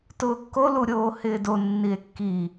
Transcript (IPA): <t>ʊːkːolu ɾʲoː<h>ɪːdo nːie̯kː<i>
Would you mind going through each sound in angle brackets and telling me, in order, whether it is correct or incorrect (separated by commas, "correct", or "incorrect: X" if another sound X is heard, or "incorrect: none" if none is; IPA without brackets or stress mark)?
correct, correct, correct